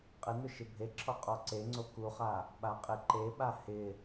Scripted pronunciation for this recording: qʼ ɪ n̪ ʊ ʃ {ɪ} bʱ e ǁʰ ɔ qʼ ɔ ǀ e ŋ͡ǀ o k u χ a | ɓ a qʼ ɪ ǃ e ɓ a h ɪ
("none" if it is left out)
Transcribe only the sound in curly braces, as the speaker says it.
ɪ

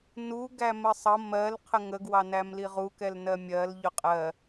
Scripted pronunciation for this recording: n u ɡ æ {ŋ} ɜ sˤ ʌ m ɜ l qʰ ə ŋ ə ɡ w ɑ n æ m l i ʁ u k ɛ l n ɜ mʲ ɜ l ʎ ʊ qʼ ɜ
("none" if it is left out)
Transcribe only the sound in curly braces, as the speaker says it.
m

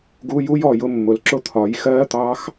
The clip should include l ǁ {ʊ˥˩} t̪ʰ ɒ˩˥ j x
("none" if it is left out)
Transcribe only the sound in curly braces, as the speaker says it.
ʊ˥˩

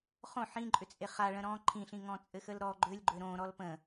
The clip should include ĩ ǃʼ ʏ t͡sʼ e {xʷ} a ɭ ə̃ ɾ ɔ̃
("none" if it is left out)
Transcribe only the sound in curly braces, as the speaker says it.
χ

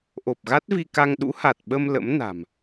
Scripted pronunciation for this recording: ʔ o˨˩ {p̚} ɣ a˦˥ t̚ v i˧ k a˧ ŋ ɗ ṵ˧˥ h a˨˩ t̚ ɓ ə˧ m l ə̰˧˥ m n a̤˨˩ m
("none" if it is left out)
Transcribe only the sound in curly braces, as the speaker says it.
p̚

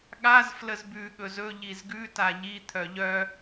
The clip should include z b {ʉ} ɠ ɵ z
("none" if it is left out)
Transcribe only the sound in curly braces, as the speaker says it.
ʉ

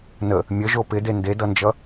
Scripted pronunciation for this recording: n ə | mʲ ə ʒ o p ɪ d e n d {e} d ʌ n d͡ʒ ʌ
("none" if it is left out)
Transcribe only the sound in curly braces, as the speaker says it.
e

